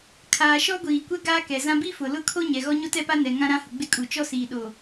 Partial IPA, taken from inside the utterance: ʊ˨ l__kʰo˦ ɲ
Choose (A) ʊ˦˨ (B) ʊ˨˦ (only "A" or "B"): A